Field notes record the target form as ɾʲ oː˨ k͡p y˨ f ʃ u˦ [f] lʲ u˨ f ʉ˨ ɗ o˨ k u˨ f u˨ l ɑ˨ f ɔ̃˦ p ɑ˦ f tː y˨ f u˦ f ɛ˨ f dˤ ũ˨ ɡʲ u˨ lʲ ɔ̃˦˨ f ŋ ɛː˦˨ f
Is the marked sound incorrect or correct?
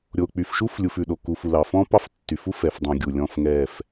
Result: correct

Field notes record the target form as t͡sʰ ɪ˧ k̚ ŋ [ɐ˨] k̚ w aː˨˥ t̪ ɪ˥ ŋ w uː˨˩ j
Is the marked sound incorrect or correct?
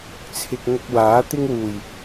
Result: incorrect: ɐ˧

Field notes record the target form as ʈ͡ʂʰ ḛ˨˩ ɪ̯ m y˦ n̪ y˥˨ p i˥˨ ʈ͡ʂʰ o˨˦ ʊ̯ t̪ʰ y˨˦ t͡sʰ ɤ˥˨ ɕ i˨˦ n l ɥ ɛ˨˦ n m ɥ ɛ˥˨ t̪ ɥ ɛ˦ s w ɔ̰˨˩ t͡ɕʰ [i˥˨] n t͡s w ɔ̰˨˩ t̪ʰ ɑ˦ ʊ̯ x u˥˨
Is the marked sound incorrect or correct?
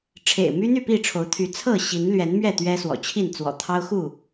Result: correct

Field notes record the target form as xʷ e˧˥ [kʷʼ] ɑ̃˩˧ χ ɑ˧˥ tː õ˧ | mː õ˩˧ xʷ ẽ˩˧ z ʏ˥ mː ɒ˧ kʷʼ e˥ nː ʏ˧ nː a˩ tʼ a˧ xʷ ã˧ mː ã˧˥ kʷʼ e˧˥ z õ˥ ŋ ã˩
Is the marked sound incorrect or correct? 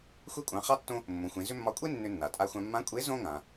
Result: correct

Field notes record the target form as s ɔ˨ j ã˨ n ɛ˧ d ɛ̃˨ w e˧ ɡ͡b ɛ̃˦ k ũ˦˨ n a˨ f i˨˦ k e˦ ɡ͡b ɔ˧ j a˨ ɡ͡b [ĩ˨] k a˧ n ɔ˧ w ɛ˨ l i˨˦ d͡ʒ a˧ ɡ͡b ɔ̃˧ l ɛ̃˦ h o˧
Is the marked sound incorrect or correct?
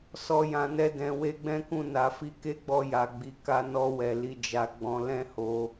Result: incorrect: i˨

